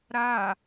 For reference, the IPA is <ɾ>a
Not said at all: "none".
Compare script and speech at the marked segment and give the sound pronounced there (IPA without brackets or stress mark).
ɾ